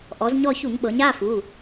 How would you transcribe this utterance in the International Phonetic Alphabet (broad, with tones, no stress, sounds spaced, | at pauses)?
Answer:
ʔ ɔ˩˧ z ɲ ɔ˦˨ ç u˧˩˧ ŋ ɓ ɤ˩˧ ɲ a˧˥˧ f u˩˧˩